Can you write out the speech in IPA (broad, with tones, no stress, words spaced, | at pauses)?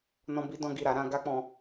nɔ̃˦bi˦dɔ̃˦ɡi˦˨ ɾa˧ɾã˧ ɡa˦k͡pɔ̃˧